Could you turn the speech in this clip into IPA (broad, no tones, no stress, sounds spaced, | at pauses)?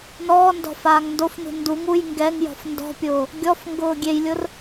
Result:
n ɔː n d ɔ̤ f aː ŋ n d o f n ṳ n d u ŋ u j ŋ ɡ ɛ ŋ j ɔ̤ f n d ɔ̤ pʲ ʊː | ɡʲ ɔ f ŋ ɡ ʊː ɡʲ e j lʲ ʊ r